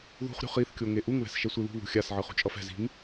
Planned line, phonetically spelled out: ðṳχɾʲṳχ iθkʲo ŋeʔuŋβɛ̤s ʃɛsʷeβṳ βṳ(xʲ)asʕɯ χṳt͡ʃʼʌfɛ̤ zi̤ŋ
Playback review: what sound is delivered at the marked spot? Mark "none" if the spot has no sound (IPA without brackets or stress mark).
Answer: xʲ